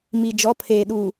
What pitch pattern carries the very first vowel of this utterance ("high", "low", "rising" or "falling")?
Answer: low